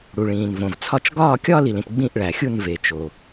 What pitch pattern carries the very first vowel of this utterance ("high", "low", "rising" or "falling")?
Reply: low